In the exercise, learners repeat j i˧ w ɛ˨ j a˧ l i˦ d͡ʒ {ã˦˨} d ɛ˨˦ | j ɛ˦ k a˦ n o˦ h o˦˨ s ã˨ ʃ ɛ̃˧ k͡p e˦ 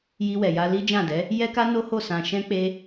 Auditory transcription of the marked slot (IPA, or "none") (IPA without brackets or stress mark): ã˦˨